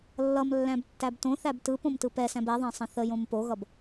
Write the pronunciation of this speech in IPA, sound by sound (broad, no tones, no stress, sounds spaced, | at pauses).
lː ʌ m lː æ̃ b tː æ b t õ θ æ b t ɯ p õ m t ɯ p ɛ s æ̃ b ɛ ðˤ æ̃ sˤ ə̃ θ ə j õ m p o ɣ ʌ b